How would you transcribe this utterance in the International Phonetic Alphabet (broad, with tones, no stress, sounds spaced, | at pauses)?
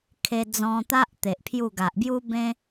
kʰ e˧ d͡z ɔ̃˧ t̪ a˦ ʔ t̪ e˨ ʔ pʰ j u˥˧ ɡ a˨ ʔ b j u˦ b ẽ˦